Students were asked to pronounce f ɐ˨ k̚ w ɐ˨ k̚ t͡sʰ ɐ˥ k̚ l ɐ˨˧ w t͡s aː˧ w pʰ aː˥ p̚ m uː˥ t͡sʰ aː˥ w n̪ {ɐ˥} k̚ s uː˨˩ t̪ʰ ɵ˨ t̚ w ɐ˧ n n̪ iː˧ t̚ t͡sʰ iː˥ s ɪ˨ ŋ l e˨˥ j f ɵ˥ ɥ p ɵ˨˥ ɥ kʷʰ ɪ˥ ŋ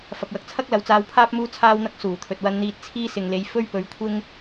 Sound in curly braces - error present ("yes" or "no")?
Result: no